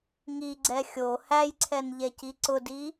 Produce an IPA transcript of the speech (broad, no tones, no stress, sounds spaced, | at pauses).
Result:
ŋ i ɡ͡ǀ ɛ xʲ o h æ j ǀʰ ɛ n ʎ ɛ c i ǀ ʊ d i